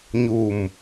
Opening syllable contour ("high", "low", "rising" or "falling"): low